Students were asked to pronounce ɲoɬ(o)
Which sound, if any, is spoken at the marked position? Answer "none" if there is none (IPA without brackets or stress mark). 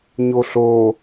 o